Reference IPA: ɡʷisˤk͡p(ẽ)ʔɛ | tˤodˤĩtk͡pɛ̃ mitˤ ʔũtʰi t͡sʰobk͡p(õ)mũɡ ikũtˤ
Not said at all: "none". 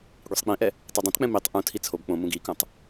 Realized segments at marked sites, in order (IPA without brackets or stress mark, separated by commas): ĩ, õ